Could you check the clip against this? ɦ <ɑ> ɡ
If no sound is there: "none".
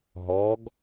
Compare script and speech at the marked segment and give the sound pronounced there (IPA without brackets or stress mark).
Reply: ɔ